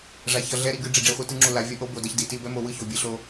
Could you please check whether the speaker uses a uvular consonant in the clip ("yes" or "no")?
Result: yes